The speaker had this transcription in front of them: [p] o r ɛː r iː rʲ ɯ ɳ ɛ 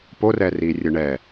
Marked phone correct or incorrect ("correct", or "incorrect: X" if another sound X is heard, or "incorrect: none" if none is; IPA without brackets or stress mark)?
correct